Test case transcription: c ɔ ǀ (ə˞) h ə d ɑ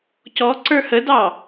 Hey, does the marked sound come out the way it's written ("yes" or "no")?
yes